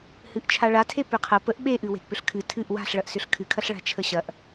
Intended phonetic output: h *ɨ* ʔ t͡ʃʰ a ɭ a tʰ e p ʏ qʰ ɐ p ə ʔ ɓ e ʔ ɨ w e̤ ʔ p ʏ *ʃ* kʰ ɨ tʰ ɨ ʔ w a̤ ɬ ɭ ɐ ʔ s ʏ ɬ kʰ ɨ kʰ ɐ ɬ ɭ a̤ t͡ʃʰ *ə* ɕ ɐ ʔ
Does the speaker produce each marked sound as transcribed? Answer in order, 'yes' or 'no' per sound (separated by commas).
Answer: yes, no, yes